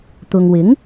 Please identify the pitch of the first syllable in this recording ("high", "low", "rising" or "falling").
low